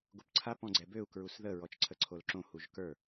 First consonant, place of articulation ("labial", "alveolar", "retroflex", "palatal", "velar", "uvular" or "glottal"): velar